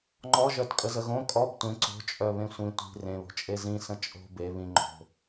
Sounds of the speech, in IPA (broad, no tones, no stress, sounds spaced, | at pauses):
ŋ͡ǃ ɔ ʒ œ t kʼ ə z ə ɣ õ kʼ ɔ b tʷ ẽ ǀ o̤ t͡ʃʼ œ β ẽ sʷ ĩ tʷ i̤ r ẽ β o̤ t͡ʃʼ e z ĩ s ə̃ t͡ʃʼ o̤ b e β ĩ ŋ͡ǃ o̤